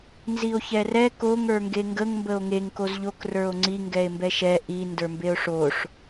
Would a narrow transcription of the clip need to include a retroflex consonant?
yes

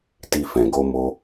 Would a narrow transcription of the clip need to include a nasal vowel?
yes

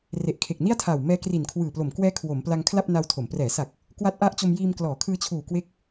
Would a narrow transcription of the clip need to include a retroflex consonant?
no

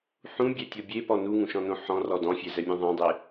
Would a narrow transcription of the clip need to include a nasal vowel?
yes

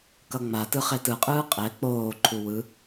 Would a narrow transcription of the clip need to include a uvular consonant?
yes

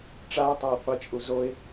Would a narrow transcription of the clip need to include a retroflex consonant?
yes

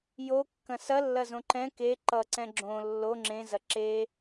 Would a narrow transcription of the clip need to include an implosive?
no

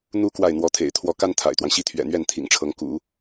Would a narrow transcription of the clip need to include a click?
no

